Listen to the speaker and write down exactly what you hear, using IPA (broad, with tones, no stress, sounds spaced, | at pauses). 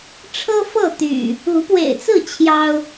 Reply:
ʈ͡ʂʰ ɤ˦ f ɤ˥˨ t̪ y̰˨˩ | u˨˦ p w ḛ˨˩ ɪ̯ t͡s ɹ̩˥˨ t͡ɕʰ j ɑ˦ ʊ̯